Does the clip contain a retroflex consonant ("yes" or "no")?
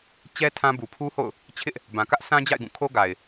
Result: no